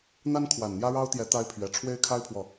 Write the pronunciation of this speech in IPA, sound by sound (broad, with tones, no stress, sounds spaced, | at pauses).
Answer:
n̪ a˦ n kʰ w a˨˩ n n̪ j ä˦ ɻ ɑ˦ ʊ̯ t̪ j ɛ˨˦ t̪ a˦ ɪ̯ pʰ ɥ ɛ˨˩ ʈ͡ʂʰ w e˦ ɪ̯ kʰ a˦ ɪ̯ pʰ w ɔ˨